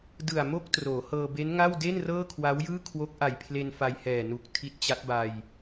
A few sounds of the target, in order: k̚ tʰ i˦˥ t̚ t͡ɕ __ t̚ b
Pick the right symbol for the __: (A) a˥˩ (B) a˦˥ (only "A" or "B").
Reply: B